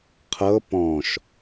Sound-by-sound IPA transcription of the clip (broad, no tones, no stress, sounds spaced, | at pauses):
qʰ ɤ p ɔ̃ ʃ